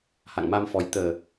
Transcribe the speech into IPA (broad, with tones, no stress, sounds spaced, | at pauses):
h a̰˧˨ ŋ m a˧ m f ɔ˨˦ j t̪ əː˨˩